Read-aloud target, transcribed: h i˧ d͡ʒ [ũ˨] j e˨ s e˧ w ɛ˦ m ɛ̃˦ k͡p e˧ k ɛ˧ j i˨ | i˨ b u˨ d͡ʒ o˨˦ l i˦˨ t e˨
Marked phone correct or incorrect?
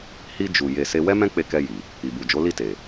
incorrect